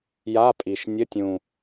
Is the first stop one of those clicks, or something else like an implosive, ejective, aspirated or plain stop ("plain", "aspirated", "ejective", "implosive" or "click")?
ejective